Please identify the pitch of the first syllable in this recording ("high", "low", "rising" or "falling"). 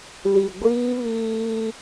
low